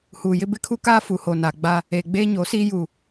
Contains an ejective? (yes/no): no